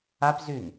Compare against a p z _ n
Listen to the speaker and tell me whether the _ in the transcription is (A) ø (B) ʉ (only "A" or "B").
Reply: B